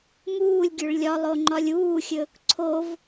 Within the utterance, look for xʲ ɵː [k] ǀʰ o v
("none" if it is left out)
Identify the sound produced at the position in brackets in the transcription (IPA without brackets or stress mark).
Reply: k